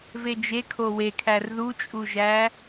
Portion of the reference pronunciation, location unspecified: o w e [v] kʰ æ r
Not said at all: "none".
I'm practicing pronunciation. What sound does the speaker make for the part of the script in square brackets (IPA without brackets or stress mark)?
none